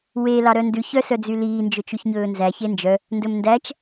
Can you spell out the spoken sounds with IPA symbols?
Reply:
we lɑɾœndʉç œsœd͡zyliː nd͡ʒɵt͡ʃyçɲɵːnzæ çend͡ʒœ | ndɵmndæt͡ʃ

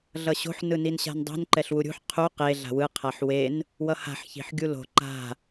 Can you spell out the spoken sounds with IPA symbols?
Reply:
ɮʌɕo̤ħ nɯninɕa̤ndˤṳn ǃɛɬwuɾʲṳħ qʰu qe ɮa̤wɯ qʰaħwen | wʌha̤ħ çi̤ħɡʲulo̤ ǃa̤

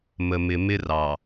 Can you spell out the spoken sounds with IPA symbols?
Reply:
mə˨mɪ˨mɪ˦ rɑ˨

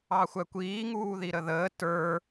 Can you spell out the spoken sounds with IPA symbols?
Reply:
ɑxʷækʷiː ŋuːðiɾəðəː tə˞

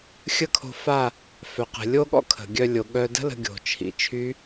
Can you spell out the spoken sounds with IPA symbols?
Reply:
xʲə˦˨kʰo̤˧ fa˦˨ | fœ˨ qə̤˨lʲo˦ɠɔ̰˦ kʰə̤˨ɡʲœ˧lʲo˨ ɠœ˧də̤˦lə̤˧ ɡʲo̤˨t͡ʃʰḭ˨ t͡ʃʰy˦

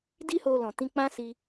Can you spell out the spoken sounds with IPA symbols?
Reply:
di˦ho˧ lɔ̃˨tĩ˧k͡pã˦ si˦

